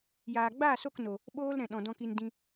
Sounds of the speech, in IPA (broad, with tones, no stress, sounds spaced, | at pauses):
j aː˨ ɡ͡b aː˦˨ s o˦˨ k n o˨ | ɓ oː˦ l ɾ ɛ̃˨ ɗ ɔ̃˨ d ɔ̃˨ k i˨ n d ĩ˧